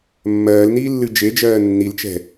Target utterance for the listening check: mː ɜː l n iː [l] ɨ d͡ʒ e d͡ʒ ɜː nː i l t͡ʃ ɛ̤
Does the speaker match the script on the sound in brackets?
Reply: no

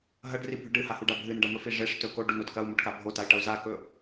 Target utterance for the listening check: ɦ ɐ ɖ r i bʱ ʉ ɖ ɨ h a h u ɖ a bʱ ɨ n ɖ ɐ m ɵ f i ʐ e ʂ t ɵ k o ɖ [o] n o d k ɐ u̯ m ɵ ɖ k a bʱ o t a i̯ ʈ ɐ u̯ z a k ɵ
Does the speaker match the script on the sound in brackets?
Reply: no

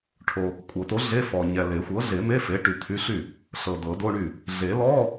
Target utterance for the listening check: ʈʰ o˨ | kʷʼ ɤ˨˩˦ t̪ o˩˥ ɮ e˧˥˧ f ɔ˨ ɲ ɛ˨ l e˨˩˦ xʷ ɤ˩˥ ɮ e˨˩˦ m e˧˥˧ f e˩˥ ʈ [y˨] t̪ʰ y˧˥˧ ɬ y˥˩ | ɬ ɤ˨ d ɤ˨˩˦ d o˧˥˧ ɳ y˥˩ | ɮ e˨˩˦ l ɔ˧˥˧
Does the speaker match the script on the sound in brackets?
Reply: yes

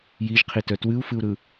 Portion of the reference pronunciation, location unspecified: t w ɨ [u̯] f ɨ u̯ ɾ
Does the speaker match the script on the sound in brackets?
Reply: yes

